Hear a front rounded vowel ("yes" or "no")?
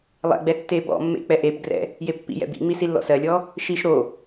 no